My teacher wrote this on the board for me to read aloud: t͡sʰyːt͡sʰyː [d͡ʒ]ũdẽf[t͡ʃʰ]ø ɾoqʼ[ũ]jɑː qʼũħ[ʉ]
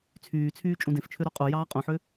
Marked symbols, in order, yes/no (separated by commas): no, yes, no, no